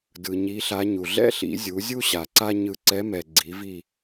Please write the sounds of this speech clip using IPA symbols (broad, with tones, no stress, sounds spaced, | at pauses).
d ɯ˨ ɲ i˧˥ ɬ a˧˥ ɲ u˨ ɮ ɛ̰˥ ɬ ḭ˩˥ zʲ u˩˥ zʲ u˥ ɕ a˨ ǀ a˥ ɲ ɯ˦˨ ǀ ɛ˧˥ m ɛ˨ ɡ͡ǀ i˩˥ v i˦˨